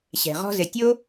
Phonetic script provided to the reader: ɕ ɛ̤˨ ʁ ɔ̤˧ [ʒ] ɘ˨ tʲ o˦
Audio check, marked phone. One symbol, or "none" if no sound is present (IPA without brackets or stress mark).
z